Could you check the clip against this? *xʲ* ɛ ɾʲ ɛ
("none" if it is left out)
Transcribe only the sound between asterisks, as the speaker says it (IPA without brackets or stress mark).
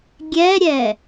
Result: ɡʲ